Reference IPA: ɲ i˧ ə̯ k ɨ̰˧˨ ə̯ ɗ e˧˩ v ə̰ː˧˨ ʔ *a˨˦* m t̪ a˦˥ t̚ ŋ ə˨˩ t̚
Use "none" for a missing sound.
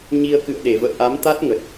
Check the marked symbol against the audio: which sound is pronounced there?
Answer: a˨˦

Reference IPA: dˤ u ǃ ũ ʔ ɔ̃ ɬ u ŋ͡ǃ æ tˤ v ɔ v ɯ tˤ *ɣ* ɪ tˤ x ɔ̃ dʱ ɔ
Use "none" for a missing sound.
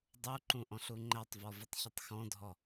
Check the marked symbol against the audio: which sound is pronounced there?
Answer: ç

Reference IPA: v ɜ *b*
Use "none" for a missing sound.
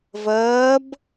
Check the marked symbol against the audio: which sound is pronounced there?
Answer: b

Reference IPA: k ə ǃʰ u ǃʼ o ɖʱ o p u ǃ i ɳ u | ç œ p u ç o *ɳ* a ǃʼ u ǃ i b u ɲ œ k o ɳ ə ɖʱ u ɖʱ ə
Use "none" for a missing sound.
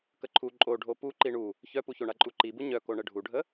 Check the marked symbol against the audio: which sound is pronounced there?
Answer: ɳ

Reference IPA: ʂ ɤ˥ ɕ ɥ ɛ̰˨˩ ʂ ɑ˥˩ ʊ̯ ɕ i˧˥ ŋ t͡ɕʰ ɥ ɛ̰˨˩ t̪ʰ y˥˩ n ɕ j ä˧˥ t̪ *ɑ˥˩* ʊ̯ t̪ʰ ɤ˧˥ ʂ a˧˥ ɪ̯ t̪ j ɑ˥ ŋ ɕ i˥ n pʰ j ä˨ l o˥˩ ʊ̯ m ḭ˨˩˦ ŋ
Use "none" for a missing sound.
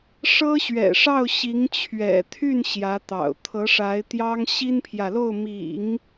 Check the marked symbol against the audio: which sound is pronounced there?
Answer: ɑ̰˨˩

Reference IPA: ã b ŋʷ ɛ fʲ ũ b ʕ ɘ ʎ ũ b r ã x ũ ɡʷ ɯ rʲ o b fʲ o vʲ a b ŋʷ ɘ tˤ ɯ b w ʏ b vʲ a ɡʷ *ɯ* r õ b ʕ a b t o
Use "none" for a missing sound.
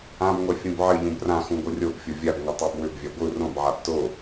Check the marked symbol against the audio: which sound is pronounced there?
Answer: ɯ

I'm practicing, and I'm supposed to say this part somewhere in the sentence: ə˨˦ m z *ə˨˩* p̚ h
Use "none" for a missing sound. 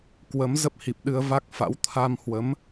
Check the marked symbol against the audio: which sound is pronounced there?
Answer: ə˦˥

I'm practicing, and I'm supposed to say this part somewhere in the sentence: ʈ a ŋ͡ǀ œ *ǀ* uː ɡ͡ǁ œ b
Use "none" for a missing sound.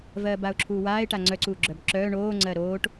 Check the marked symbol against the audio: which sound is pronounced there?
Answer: ǀ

